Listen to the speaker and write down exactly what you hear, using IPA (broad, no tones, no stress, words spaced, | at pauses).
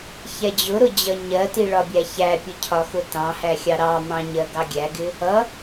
çɛd͡ʑʊɾʊ d͡ʑʌɲɜti ɭɒbʲæçæpʲʊ cʰɒxʊtɑ̃hæ xʲɑɾɑmɑ̃ ɲɜɡɑɡʲæɡɪ | ʌ